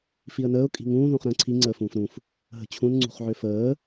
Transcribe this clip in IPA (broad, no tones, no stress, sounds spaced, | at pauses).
f i ə̯ n əː ʊ̯ kʼ i̤ ŋ ũː ð ũ χ ɾ ə̃ː ǀʰ i ŋ͡ǀ əː f ũː f ɾ ũ f | ɦ ə̤ t͡ɕʰ ũ n ŋ͡ǀ ṳ χ ʕ ø f əː